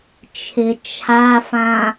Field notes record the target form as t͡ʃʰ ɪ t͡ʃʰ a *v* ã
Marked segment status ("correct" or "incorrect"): incorrect